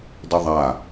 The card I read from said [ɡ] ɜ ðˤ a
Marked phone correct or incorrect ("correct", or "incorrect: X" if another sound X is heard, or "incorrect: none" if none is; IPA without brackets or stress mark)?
incorrect: d